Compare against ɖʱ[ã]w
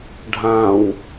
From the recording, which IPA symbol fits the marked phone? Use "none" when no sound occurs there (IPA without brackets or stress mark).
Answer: ã